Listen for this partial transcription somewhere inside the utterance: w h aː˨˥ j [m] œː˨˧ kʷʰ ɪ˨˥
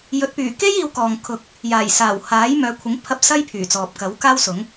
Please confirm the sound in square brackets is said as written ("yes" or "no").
yes